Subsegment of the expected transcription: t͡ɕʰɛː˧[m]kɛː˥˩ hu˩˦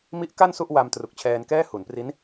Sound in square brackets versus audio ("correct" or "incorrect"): incorrect